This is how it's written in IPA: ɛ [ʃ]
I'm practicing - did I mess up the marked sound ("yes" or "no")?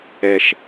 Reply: no